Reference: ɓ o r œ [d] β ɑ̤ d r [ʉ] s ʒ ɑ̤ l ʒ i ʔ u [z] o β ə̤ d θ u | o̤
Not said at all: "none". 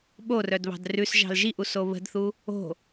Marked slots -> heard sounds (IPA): d, ʉ, s

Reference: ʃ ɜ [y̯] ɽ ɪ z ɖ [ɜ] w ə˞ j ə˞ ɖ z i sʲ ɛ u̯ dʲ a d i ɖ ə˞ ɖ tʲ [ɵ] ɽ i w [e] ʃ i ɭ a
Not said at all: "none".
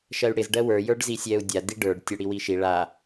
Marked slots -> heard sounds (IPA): y̯, ɜ, ɵ, i

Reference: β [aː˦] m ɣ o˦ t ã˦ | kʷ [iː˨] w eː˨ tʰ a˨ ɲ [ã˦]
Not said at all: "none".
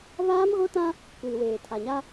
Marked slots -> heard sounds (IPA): aː˦, iː˨, a˦

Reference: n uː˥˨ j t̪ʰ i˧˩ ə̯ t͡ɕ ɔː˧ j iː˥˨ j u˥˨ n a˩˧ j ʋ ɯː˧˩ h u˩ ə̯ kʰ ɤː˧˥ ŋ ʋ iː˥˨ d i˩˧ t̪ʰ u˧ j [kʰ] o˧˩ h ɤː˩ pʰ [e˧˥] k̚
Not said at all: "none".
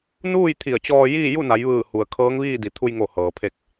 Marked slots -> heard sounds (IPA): ŋ, e˧

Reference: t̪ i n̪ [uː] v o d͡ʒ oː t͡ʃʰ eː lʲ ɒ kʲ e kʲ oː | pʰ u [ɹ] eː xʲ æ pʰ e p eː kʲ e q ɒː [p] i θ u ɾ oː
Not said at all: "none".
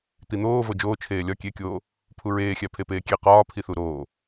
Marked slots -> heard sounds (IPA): oː, ɹ, pʰ

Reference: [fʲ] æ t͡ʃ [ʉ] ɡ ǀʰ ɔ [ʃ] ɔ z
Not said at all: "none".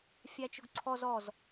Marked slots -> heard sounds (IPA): fʲ, ʊ, z

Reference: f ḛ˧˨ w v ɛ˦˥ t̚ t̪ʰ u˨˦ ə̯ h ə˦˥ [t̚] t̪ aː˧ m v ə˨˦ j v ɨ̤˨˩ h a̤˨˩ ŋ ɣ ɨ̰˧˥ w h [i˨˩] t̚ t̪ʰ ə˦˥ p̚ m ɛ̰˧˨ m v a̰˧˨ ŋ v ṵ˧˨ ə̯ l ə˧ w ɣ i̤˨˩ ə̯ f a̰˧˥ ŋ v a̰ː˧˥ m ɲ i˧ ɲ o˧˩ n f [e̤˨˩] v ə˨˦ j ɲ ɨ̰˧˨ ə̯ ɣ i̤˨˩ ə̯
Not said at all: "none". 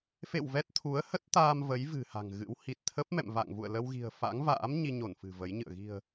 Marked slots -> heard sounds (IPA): t̚, i˨˩, ɨ̤˨˩

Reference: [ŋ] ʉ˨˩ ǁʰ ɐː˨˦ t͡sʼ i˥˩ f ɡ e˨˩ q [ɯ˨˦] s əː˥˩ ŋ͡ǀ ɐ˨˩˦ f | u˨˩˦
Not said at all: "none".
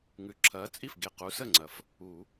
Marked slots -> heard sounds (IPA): ŋ, u˨˦

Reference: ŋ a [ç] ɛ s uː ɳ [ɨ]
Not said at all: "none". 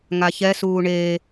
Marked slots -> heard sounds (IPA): ç, e

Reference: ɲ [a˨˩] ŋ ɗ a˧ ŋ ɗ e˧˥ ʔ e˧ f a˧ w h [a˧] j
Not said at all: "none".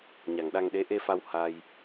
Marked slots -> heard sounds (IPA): a˨˩, a˧

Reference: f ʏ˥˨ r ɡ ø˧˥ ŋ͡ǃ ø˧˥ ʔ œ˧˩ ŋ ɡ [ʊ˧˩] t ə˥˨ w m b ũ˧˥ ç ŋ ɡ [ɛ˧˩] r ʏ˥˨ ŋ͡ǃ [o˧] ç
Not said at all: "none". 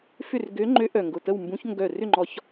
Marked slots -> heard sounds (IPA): ʊ˧˩, œ˧˩, ɔ˧

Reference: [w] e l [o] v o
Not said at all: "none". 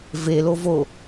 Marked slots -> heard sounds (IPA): v, o

